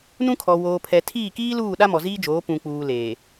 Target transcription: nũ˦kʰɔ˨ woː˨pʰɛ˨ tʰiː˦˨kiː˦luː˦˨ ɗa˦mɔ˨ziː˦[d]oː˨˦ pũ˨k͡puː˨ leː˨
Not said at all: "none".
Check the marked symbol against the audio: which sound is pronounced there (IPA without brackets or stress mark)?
d͡ʒ